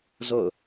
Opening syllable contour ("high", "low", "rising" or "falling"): falling